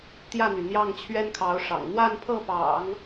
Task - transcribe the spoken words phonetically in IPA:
t̪jä˥˩n̪y˩n̪jɑ˥˩ŋ t͡ɕʰɥɛ˥nkʰɑ˧˥ʊ̯ʂɑ̰˨˩ŋ n̪wa˥˧npʰɤ˥˩pɑ̰˨˩˦ŋ

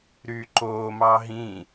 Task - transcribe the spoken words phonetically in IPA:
ɾyǃoː mɑɦĩ

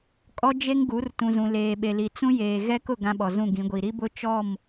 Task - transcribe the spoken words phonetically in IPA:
kʼɔ˦ d͡ʒe˦ŋɡu˨˦r tũ˨zũ˨leː˨ ɓe˨li˨ t͡sũ˦jeː˨ ɣɛ˦kʊ˦˨ ɡã˦ɓɔ˨zũ˦˨ ɡĩ˨˦ɡʷi˨ ɾi˦bʊ˦ t͡ʃɔ˦˨m

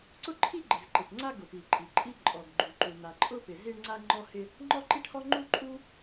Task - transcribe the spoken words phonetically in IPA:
ǀʊ˥ǃʰi˥ɡ͡ǃɪ˩z ǃɪ˩ʈ ŋ͡ǀa˥ɡʊ˩pi˩ ǃʼi˩ǃʼi˥ ǃʼɔ˩ɡɡ͡ǃu˩ǃu˩ n̪a˩ǃʼʊ˥pɪ˩ zi˥ɳŋ͡ǀa˥ŋ͡ǃɔ˥hɪ˥ | ŋ͡ǃɔ˥ǃi˥ʈhɔ˥ ŋ͡ǃu˥ǃʼu˥

